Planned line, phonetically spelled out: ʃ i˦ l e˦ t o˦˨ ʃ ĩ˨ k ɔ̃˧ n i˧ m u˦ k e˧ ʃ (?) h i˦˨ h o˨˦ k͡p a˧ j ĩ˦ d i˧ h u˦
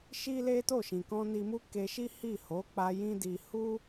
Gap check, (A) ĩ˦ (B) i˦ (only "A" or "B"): B